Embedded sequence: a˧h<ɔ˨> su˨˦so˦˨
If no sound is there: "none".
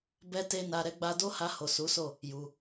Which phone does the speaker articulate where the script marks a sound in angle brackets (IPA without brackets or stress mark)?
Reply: o˨